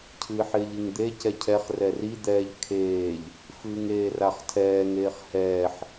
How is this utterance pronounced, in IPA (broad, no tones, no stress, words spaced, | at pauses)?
cʰɨːħɪːʎɨŋd̪e cɛcʰɛχ rɛri d̪ɛːʎkʰeːʎ | fɨːŋeːraχtʰɛːŋ eːχhɛːħ